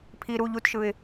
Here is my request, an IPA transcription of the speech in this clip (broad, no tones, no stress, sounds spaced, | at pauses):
pʰ i ɾ u ʎ u t ʃ ɯ ɪ̯